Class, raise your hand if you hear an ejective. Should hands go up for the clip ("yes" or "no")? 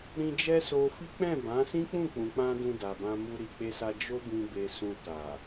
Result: no